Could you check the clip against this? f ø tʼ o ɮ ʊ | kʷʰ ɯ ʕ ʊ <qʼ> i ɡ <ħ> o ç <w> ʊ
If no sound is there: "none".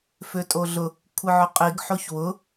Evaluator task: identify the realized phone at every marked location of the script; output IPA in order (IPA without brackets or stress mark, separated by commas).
qʼ, ħ, w